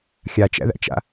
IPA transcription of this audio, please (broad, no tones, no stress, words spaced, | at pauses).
xʲat͡ʃæ̰ðæ̰t͡ʃa̰